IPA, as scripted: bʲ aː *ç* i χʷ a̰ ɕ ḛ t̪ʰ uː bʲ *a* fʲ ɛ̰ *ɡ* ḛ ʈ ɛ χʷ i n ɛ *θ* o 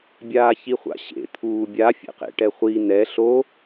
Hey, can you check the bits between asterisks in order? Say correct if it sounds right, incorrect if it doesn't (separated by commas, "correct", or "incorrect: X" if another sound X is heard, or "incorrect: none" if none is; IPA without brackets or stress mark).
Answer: correct, correct, incorrect: q, incorrect: ɬ